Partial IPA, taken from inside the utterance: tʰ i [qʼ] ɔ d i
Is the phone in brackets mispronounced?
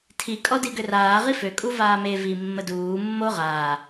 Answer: yes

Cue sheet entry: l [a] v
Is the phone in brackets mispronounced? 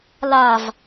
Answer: no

